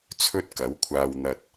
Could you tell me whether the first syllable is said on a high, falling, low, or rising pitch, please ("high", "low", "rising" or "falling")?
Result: high